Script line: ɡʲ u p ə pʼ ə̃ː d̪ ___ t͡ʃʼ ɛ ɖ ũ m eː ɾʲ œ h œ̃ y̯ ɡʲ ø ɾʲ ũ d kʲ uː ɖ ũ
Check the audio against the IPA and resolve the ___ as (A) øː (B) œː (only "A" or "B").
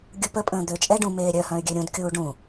A